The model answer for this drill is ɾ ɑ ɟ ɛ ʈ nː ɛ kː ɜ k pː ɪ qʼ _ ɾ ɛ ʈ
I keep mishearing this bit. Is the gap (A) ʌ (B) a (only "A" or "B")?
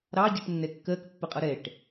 A